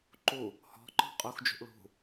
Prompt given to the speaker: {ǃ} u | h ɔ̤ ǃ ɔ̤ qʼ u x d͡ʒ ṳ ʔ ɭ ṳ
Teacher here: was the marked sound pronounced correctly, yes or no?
yes